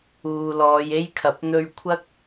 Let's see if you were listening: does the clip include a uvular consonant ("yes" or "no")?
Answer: no